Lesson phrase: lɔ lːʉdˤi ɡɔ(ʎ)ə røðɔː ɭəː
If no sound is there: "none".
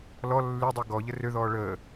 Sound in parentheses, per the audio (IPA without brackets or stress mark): ʎ